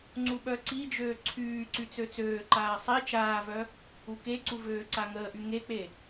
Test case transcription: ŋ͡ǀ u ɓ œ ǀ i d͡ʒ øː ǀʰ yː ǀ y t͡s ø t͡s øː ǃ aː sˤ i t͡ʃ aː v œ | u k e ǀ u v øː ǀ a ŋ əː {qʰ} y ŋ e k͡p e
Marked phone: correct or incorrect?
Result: incorrect